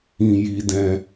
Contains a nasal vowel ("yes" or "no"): yes